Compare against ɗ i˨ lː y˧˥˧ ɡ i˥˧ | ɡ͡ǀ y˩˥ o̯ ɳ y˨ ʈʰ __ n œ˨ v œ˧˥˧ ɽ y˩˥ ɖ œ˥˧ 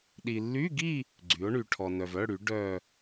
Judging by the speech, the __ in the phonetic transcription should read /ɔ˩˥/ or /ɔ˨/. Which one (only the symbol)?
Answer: ɔ˨